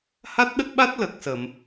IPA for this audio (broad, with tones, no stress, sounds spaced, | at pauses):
h a˦˥ t̚ ɗ ə˦˥ k̚ ɓ a˦˥ t̚ l ə˨˩ k̚ s ə˨˩˨ m